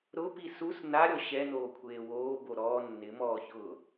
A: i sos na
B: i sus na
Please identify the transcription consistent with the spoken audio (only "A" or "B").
B